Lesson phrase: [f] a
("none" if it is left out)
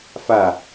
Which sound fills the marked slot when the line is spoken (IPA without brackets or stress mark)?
f